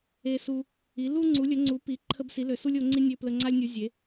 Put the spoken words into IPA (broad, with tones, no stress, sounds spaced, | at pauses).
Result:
e˦ s u˦ | i˨˦ l u˦ ŋ͡ǀ u˨˦ lʲ ə˨˦ ŋ͡ǀ u˨˦ p i˨˦ ǃʰ ə˦ b s i˨˦ l ø˨˦ s u˦ lʲ o˨˦ ŋ͡ǀ i˦ nʲ ø˦ p l ə˦ ŋ͡ǀ a˦ lʲ nʲ u˨˦ zʲ e˨˦